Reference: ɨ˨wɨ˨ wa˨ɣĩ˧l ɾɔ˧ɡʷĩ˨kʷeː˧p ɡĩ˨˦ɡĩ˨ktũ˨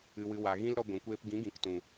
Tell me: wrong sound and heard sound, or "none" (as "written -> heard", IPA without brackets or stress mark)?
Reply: none